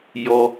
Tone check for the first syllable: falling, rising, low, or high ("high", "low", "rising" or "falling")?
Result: low